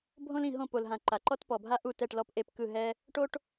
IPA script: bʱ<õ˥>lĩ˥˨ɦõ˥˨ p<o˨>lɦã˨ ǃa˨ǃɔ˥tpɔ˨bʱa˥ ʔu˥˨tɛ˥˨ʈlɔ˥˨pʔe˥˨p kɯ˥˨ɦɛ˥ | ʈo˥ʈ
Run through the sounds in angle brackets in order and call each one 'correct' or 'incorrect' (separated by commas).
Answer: correct, correct